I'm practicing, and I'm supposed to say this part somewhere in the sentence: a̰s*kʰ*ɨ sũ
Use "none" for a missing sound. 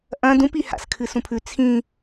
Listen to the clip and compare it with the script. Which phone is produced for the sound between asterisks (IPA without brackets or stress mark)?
kʰ